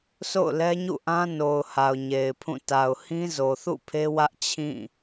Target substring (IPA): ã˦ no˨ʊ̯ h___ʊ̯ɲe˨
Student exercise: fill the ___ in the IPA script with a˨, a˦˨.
a˨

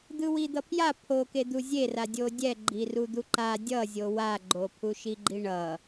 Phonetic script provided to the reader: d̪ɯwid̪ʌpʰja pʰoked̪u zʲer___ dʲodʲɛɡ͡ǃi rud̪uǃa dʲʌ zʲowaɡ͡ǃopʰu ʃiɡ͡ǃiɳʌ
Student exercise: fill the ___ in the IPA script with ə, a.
a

